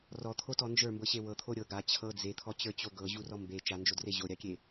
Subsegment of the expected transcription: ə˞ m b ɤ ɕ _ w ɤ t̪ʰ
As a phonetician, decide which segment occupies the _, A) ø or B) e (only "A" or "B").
B